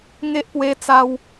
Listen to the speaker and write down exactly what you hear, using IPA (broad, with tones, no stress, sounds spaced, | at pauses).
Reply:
ŋ e˦ ʔ p w e˦ t͡s a˦ w